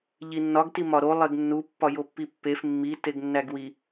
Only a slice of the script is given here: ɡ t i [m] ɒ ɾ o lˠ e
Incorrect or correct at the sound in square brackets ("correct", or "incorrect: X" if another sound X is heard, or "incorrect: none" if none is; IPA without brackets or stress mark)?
correct